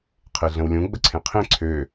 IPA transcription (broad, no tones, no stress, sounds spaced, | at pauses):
qʰ e ɮ ə̃ w lʲ ũ ɡ͡b ə ǀʰ ẽ qʰ ẽ ǀʰ ø